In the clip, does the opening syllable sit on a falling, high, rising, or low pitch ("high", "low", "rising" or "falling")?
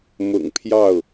low